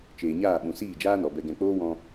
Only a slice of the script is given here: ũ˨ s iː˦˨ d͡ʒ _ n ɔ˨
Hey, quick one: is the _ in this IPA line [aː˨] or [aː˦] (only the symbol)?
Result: aː˦